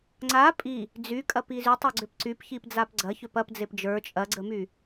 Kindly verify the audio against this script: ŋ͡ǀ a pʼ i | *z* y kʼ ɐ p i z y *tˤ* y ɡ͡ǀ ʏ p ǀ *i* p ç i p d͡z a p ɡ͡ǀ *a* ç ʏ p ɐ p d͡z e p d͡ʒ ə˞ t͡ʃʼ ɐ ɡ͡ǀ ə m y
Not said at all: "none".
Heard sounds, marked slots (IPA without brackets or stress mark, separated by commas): d͡z, tˤ, y, ɐ